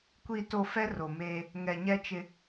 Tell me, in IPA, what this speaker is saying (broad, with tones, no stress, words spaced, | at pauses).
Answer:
kʷi˨to˨ fɛ˦ro˨meː˦ | ŋɛ˨ɲɛ˦t͡ʃɪ˦